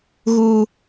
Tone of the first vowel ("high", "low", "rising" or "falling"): high